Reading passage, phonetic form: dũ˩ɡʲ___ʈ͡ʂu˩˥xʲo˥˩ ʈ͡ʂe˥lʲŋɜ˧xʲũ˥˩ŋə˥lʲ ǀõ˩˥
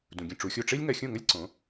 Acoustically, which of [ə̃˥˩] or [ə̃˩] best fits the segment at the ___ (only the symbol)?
ə̃˥˩